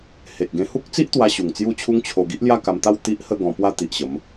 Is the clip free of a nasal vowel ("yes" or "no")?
no